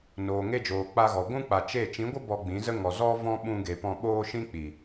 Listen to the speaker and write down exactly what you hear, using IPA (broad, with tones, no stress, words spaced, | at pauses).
noː˨ŋe˧d͡ʒoː˨ k͡pa˧ɣɔ˨ ɡʷũ˦k͡pa˨ t͡ʃe˦˨ t͡ʃĩ˨˦ɡʷə˦ bɔ˧ɡ͡bĩ˨˦zə˦ ŋɔ˨zɔ˦ vɔ̃˦ɓũ˧ɡe˨ pɔ̃˧ɓoː˦ ʃĩ˦k͡pi˨